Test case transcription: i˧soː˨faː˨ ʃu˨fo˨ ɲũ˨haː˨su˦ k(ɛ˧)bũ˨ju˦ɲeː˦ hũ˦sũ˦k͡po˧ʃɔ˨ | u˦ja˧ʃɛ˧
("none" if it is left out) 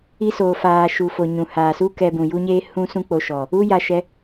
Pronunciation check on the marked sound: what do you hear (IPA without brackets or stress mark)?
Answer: ɛ˧